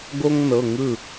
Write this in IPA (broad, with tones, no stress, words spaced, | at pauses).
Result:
ɡo˥ŋnɤ˩˧˩ ŋɯ˥˩